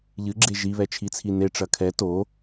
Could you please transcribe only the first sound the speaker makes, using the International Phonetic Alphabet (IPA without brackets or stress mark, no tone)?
ʎ